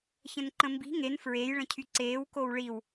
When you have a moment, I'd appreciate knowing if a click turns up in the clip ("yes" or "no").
yes